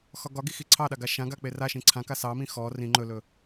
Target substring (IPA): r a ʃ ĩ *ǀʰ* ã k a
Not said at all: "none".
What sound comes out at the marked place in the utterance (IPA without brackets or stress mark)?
ǀʰ